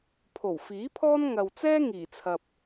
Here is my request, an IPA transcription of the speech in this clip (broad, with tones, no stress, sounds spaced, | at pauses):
pʰ o˨˩ w f iː˨˥ pʰ ɔː˥ n ŋ ɐ˨ w t͡s ɛː˥ ŋ iː˨˩ t͡sʰ ɐ˨ p̚